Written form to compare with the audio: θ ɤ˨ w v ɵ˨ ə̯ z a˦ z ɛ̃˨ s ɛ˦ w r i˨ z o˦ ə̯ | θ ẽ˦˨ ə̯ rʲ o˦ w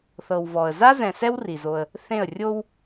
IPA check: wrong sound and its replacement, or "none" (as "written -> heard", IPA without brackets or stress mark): ɵ˨ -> ɔ˨